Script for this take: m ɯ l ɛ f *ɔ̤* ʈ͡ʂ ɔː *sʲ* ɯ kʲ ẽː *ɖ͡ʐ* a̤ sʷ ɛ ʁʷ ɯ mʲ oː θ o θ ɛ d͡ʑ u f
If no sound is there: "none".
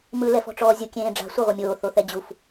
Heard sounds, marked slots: ɔ̤, zʲ, ɖ͡ʐ

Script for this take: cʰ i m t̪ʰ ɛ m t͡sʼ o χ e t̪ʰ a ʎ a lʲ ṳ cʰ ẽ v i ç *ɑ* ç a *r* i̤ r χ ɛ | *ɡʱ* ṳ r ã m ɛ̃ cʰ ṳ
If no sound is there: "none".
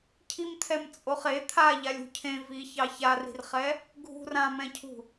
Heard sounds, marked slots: ɑ, r, ɡʱ

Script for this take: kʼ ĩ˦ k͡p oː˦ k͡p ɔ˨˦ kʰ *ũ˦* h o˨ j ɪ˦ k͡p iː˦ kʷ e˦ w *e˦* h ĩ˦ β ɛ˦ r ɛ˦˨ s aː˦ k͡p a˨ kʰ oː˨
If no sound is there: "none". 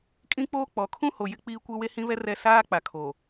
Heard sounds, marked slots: ũ˦, e˦

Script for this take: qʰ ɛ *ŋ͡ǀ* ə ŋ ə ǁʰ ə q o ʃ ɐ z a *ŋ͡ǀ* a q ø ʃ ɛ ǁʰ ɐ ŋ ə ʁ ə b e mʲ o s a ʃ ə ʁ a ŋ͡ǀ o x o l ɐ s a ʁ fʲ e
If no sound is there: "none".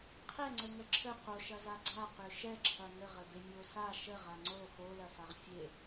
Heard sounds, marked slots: ŋ͡ǀ, ɡ͡ǀ

